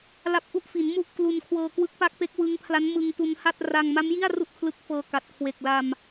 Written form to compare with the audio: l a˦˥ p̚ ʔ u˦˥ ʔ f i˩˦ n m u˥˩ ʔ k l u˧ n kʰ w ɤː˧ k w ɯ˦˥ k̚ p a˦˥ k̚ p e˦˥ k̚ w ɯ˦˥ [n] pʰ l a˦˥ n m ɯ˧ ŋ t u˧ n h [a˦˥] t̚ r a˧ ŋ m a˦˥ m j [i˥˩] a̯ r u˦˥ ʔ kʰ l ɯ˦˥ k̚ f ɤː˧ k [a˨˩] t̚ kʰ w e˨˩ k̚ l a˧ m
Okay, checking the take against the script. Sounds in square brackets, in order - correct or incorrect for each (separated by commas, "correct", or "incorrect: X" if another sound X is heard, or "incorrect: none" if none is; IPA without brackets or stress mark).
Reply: incorrect: ŋ, incorrect: a˥˩, correct, correct